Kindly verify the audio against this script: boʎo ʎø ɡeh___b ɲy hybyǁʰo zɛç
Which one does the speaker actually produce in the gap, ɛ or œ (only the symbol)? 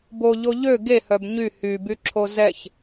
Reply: œ